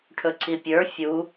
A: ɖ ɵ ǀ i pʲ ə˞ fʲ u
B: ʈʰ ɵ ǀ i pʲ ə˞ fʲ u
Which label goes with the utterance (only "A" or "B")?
B